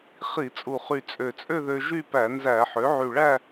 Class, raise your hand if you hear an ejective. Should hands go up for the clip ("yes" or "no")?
yes